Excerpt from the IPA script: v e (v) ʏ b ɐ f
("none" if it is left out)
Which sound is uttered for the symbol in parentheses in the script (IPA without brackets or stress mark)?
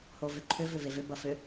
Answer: v